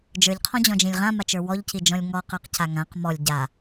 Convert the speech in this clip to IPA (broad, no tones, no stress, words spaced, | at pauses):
d͡ʒə˞ʎqʰɔ̃d͡ʑɔ̃d͡ʒĩlʲ ʁãmat͡ʃə˞ wɔʎcid͡ʒɔ̃lʲ ŋɔqə˞qca ŋãq mɔlʲ ɟa